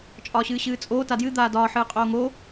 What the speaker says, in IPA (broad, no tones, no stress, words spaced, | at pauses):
t͡ʃʼɒːɕɨːɕɨːt͡sʼoː tadjɨ d̪aːdɒː ħɨːqʼoːŋo